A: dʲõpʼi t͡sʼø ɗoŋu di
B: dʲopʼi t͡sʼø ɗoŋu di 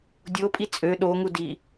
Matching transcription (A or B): B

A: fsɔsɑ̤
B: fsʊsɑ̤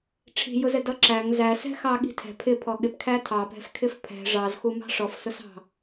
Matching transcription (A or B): B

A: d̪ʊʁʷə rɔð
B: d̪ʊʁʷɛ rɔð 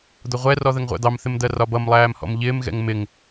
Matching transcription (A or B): B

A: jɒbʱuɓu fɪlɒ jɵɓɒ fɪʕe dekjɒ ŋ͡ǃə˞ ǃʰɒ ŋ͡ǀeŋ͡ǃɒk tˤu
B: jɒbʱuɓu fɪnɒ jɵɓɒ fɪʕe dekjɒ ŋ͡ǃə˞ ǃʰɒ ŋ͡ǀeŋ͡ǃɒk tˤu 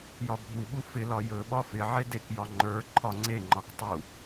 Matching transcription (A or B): A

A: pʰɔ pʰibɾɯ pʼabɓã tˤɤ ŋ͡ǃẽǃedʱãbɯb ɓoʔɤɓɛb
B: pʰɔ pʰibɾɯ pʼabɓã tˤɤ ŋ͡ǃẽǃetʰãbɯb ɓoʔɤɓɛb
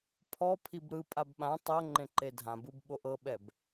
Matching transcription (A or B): A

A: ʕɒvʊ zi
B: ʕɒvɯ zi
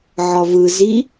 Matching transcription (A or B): B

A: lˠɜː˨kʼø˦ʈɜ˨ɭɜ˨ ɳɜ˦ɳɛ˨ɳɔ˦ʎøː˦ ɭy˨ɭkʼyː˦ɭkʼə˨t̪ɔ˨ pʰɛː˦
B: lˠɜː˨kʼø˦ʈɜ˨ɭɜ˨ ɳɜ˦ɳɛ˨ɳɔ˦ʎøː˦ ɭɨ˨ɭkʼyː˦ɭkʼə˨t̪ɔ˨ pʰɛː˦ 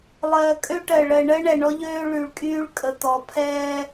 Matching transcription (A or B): A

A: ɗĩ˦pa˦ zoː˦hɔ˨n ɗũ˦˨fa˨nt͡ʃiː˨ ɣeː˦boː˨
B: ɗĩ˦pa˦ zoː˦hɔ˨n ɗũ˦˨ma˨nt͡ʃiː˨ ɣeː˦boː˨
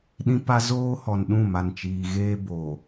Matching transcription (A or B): B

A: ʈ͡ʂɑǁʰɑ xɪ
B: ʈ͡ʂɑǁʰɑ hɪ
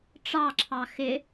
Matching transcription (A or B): A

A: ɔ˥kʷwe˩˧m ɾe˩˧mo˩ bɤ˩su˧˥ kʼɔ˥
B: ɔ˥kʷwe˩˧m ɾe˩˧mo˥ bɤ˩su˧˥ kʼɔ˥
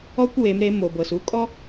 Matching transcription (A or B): A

